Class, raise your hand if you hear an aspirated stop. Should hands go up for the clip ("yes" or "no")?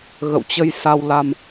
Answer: no